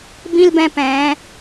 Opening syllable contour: high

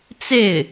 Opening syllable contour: falling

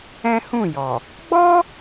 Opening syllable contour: high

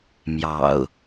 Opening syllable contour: low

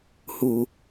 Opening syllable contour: low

